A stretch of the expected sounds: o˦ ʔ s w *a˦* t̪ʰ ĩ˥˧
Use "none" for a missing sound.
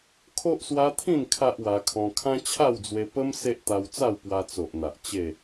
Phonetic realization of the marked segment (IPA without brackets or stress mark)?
a˦